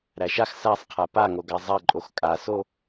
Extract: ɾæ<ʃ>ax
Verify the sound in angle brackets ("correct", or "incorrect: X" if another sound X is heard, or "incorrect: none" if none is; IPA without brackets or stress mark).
correct